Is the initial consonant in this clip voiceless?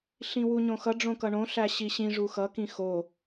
yes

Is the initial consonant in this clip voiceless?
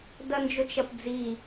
no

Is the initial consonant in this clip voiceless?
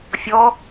yes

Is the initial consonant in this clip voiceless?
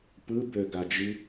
yes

